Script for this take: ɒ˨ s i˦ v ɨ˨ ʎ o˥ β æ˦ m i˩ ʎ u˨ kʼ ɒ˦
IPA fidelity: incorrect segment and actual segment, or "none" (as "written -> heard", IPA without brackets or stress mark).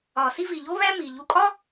ɨ˨ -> i˨